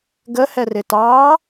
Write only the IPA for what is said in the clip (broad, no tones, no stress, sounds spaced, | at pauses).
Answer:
ɡ ə h ɛ r ɪ t ɑ